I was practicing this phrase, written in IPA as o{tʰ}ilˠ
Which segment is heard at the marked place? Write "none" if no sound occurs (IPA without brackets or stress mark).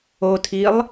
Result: tʰ